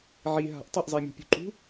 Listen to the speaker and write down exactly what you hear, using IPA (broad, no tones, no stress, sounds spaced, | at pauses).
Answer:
ʕ i ɦ a̤ ʔ tˤ ʌ ʔ zˤ e mʲ ṳ pʲ ṳ ǃ ṳ